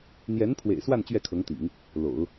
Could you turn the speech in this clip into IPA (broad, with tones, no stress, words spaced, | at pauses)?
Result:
n̪jɛ˧˥n pʰwḛ˨˩ɪ̯swa˥˧n t͡ɕɥɛ˥˩kʰɤ˧˥ŋt̪ḭ˨˩˦ŋ | lo̰˨˩˦ʊ̯